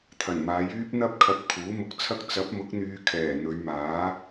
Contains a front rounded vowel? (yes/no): yes